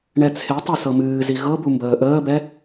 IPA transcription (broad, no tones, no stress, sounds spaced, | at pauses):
ɳ ɛ t͡sʰ e tˤ ɤ s ɤ m ɨː z i ɣ ɤ b u m b əː ʔ əː b ɛ